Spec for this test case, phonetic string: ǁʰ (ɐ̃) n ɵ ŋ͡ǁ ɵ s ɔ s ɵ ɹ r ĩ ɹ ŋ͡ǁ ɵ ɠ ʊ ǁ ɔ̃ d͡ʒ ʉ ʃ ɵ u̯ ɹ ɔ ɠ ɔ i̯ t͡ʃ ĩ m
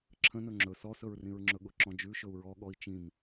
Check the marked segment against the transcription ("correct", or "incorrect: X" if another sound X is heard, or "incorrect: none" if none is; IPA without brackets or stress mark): incorrect: ə̃